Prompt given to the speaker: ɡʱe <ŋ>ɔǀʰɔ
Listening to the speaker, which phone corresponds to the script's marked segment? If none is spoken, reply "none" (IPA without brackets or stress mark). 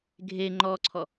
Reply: ŋ͡ǃ